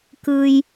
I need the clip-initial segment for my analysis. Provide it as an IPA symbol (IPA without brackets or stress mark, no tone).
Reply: k